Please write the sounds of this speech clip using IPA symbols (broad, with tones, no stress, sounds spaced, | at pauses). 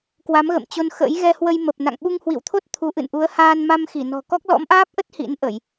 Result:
k w a˨˦ m ɣ ə̰˧˨ m t͡ɕ o˧ n x ə̰˧˥ j ɣ ɛ˧ h w ə˧ j m ə˨˩ p̚ n a̰˧˨ ŋ ɓ u˧ ŋ h w ḭ˧˨ w t̪ʰ o˦˥ t̚ t̪ʰ u˨˦ ʔ ɨ̰˧˨ n ʔ u˨˦ ə̯ h aː˧ n m a˧ m x i˧˩ n ɔ̤˨˩ k ɔ˦˥ k̚ l ɔ̰˧˥ m ʔ aː˦˥ p̚ ʔ ə˦˥ t̚ h ḭ˧˥ n ʔ ə˧˩˨ j